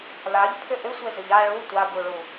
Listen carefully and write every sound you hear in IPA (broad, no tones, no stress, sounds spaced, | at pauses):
l a ʎ pʰ ʏ ʔ ʏ sʷ e z ʏ ʎ a ɭ u tʷ a b u ɭ u